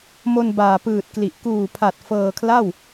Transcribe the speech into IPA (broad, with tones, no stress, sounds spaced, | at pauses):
m o˧ n b aː˨˩ p ɯː˨˩ t̚ k l i˨˩ ʔ k uː˨˩ pʰ a˨˩ t̚ f ɤː˧ kʰ l a˥˩ w